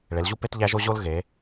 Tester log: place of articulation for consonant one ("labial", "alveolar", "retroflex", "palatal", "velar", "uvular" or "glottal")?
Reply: retroflex